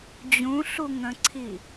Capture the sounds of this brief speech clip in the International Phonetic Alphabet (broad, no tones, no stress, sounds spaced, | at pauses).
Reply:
d͡ʑ ũ ɬ u ŋ ə̃ ǀʰ i